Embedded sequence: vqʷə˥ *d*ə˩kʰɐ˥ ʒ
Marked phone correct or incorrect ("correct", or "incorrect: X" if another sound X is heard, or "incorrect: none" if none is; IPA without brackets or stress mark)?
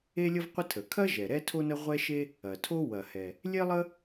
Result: incorrect: tʰ